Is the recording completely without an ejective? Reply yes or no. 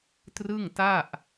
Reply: yes